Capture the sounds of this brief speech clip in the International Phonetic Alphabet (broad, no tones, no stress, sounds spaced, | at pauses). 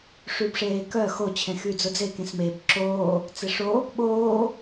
ʂ y b ʂ eː k œ x o t͡ɕʰ ẽ x y d͡z ʊ d͡z e k ẽ s m e b ǁ oː | t͡s e ʂ o | ɓ oː